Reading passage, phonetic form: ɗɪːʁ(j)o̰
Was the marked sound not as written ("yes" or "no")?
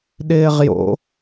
no